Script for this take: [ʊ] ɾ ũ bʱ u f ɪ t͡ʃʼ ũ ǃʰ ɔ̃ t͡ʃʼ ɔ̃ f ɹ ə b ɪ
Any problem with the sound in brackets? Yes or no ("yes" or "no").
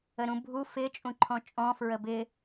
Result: yes